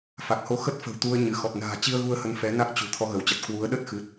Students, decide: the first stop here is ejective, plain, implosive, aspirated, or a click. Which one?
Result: plain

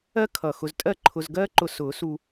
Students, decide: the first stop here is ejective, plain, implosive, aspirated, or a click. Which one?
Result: aspirated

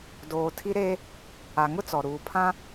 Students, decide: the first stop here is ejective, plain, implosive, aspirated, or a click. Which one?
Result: plain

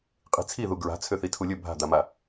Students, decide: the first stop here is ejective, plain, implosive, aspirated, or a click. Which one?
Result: ejective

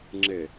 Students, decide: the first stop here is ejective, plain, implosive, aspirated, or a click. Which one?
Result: click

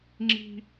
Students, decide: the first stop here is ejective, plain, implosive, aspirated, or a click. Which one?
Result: click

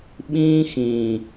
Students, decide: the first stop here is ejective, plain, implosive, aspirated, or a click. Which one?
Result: implosive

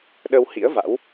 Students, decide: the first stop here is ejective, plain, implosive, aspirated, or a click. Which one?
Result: implosive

